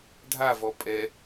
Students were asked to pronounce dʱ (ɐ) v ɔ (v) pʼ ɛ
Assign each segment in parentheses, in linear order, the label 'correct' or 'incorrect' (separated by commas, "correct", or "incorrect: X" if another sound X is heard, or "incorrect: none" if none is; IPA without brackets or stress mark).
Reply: incorrect: a, incorrect: none